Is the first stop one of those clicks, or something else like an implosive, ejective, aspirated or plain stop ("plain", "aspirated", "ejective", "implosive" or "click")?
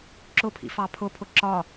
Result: click